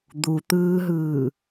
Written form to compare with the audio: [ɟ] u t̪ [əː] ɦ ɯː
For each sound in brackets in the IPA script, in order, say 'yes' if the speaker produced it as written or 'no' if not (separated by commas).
no, no